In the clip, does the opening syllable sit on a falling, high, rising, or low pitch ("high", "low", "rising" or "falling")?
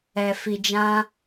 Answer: low